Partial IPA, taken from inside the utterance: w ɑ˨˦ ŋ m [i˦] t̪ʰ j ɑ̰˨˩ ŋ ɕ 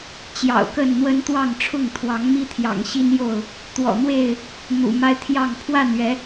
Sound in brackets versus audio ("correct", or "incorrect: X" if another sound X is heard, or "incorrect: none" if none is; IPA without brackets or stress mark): correct